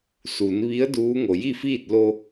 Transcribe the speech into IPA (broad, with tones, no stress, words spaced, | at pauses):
su˩˧n ʋi˧˥ə̯ duː˧˥ŋo˩ ji˥˨fiː˥˨t̚ lo˧